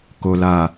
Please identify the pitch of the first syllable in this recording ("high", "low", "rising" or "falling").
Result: low